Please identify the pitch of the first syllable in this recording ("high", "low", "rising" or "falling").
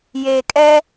low